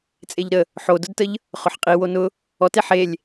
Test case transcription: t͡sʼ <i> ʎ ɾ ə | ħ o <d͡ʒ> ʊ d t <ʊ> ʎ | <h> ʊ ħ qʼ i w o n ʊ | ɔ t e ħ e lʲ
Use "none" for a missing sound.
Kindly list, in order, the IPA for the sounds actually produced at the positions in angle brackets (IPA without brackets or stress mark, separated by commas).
e, d, ə, χ